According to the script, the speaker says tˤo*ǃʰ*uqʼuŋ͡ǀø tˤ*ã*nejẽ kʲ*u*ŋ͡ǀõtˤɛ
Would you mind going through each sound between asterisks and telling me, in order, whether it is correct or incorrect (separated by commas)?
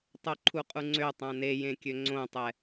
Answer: correct, correct, incorrect